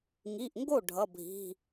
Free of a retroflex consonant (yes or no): no